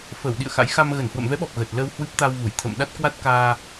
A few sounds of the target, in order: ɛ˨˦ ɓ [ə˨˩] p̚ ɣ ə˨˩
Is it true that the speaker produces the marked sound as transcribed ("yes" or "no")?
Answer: no